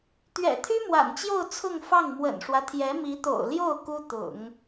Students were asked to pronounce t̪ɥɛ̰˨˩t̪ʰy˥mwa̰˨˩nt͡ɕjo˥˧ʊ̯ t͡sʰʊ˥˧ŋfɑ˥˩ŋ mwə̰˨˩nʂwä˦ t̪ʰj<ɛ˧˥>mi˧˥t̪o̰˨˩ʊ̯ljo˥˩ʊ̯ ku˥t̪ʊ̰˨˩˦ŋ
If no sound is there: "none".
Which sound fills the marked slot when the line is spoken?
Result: ɛ˧˥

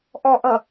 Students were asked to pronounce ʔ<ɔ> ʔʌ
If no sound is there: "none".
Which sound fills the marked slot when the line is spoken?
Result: ɔ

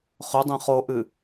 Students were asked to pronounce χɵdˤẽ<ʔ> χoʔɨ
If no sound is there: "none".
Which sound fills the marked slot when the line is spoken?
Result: none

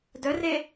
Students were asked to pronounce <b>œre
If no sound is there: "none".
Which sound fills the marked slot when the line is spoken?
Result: d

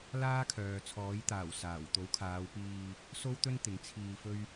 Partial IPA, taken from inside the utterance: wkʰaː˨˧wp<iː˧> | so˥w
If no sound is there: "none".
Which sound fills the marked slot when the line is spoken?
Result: iː˧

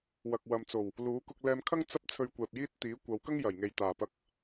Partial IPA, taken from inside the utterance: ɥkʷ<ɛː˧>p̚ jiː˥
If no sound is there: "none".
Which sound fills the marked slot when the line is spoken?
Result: ɛː˨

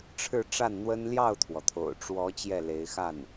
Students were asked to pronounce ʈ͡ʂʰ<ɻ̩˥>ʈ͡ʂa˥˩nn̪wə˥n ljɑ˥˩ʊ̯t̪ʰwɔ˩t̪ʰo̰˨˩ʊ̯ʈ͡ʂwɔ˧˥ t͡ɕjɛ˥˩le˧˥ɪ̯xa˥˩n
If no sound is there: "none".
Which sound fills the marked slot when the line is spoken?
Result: ɻ̩˥˧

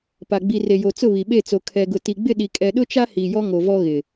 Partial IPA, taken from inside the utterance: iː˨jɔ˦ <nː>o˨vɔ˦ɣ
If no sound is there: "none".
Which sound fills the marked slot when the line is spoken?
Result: ŋ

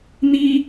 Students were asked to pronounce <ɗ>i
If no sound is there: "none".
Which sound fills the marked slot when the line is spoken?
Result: n̪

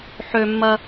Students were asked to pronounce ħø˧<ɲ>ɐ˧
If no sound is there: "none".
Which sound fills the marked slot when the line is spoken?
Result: mː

